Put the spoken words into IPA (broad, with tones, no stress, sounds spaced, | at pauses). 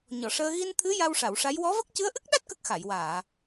ɲ ɔ˨˩˨ ʂ əː˧ ɣ i˧ n t̪ʰ ɨ˧˥ j a˧ w ʂ a˨˩˨ w ʂ a˧˥ j w ɔ˧˥ v ə˦˥ k̚ c ɨ˧˥ ə̯ ʔ ɨ˦˥ k̚ ɗ a˦˥ t̚ k ə˦˥ k̚ x a˨˩˨ j w aː˨˩˨